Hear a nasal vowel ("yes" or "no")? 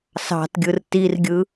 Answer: no